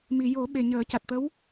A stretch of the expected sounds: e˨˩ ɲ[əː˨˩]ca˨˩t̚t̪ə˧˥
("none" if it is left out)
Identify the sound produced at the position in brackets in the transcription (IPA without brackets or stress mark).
əː˨˩˦